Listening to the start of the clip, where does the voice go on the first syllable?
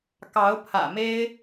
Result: rising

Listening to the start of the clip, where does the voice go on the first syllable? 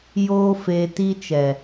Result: high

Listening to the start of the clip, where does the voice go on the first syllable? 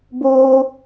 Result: high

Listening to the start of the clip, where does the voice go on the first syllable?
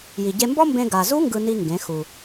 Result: low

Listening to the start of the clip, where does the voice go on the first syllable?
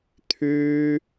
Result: high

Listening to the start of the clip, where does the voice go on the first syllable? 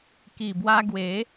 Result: low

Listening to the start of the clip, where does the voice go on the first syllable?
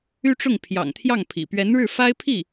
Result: high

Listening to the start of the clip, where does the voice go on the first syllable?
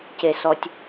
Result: high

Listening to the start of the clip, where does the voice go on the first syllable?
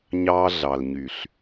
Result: high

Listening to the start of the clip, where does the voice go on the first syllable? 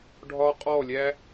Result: high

